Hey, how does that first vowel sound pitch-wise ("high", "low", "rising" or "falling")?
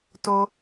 high